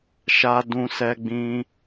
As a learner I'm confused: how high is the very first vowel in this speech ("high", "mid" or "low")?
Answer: low